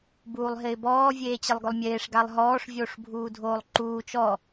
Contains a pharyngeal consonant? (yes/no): no